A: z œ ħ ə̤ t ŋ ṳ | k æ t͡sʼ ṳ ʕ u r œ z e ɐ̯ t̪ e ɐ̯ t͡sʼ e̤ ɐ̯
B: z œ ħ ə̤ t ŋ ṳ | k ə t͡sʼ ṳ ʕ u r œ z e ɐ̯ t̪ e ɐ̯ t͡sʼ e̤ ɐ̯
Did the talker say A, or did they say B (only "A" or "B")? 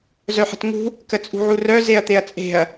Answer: B